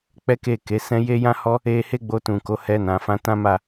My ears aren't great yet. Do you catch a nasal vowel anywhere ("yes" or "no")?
yes